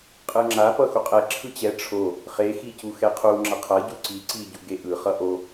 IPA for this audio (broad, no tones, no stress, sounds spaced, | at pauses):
qʼ ɯ ŋ͡ǁ a p ʌ x u qʼ ɛ ǁʰ ɯ t͡ɕ ɛ ʈ͡ʂʰ o | χ e x i c u x ɛ qʰ u ŋ͡ǁ ʌ qʰ ʌ ɟ u ǀ i ǀ i ɟ u ɡ e ʔ ɯ χ ʌ ʔ o